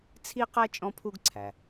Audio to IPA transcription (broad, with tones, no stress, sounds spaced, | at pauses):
t͡sʰ i˥ q æ˥ t͡ʃʼ ɔ̃˥ pʰ u˥ ɡ ǀʰ æ˩